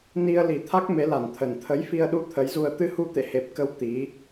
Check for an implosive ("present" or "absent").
present